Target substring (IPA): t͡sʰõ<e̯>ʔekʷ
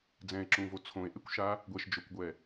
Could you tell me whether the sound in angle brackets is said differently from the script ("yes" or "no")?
no